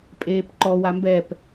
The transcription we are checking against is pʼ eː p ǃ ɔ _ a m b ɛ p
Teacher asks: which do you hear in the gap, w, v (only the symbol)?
w